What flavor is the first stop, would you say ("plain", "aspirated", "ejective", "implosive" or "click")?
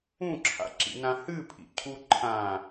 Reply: click